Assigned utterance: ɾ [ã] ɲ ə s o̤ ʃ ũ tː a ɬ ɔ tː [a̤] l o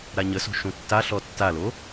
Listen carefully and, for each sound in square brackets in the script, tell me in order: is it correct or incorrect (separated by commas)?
incorrect, incorrect